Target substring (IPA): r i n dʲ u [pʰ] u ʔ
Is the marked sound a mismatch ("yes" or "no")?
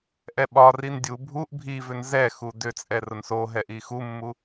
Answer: yes